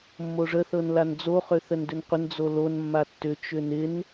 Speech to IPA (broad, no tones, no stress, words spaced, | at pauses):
mːoʐəθɤnlan d͡zoχøθən dʏnqʷən d͡zolon mːatːʏ t͡ʃʏnɪn